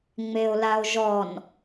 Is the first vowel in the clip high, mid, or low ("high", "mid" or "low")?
mid